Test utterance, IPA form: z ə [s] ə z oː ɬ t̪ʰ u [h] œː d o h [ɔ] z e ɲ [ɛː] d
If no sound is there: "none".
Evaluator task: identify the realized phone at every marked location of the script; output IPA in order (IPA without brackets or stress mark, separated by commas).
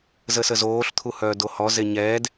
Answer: s, h, ɔ, ɛː